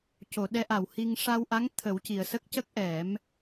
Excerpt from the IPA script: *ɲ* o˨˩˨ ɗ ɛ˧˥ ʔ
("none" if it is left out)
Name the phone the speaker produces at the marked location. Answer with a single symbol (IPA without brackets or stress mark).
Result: c